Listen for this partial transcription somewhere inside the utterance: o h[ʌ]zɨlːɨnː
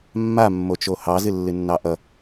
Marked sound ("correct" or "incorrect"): incorrect